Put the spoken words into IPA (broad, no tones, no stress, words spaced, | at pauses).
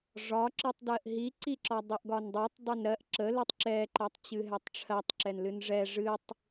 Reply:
ʐɒǁɨtˤdɜʔ ɦiǀiǁɒ dˤɨʔɡɒndˤutˤ dˤənɾɜʔ ǁəlɨtˤ ǁɛǃɛtˤ t͡ɕɨɦɛtˤʈ͡ʂʰɜtˤ ǁɛnlɨnʐɛ ʐɨtˤ